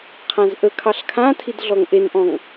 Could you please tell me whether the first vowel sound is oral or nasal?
nasal